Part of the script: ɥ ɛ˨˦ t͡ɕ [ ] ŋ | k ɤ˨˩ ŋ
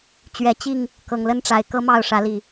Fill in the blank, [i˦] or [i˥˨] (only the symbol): i˥˨